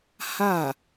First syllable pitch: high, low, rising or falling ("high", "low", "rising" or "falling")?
falling